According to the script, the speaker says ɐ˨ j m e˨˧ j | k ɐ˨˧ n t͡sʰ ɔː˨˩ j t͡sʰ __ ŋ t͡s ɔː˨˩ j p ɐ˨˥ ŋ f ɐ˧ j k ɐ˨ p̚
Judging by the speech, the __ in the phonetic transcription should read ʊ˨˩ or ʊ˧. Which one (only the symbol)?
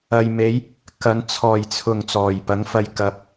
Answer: ʊ˨˩